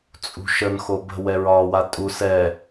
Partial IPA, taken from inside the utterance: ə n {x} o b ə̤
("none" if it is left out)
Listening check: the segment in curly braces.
x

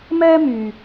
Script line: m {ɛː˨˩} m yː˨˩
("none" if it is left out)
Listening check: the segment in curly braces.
ɛː˥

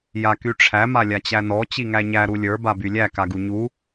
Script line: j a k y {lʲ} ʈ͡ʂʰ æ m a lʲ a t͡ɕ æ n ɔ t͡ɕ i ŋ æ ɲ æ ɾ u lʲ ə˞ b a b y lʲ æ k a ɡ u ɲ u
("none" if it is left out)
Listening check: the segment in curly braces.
none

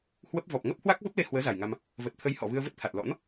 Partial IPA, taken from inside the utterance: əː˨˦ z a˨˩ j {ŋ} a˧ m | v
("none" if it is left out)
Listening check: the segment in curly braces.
ŋ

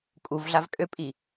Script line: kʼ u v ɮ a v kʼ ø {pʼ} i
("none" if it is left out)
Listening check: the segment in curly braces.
pʼ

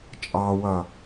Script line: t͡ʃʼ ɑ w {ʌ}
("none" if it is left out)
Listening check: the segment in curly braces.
ʌ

